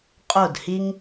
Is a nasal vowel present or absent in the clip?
absent